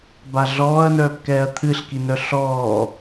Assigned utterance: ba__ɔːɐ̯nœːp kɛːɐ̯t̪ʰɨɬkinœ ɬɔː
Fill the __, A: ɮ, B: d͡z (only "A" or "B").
A